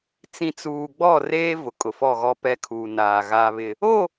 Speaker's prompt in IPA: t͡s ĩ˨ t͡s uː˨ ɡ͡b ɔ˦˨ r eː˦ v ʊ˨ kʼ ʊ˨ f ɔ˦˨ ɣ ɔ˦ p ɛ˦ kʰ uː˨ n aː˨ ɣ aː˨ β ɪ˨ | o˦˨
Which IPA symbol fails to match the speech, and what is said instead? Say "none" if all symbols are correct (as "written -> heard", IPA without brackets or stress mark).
none